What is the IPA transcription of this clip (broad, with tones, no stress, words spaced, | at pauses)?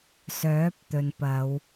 sœː˨˥p̚t̪ɵ˨npɐ˨˧w